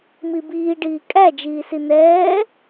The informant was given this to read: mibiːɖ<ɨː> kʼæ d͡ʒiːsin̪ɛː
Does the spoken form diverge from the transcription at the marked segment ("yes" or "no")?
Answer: yes